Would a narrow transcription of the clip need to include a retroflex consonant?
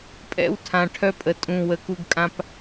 yes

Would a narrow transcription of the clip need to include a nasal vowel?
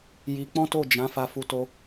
yes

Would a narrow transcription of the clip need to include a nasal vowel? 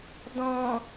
yes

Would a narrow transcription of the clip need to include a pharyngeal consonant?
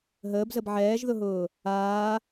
yes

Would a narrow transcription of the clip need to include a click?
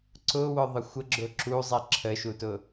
yes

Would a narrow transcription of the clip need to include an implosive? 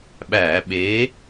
yes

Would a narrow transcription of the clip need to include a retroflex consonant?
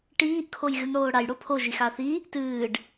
yes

